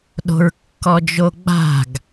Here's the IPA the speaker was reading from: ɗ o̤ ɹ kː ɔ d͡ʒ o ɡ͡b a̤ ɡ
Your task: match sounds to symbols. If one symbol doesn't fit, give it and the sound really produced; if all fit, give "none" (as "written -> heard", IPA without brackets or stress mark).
none